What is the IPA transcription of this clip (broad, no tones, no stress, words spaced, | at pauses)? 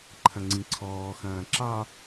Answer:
ǃʰɐ̃ŋ͡ǀĩǀʰɔː xɐ̃ːǁɑ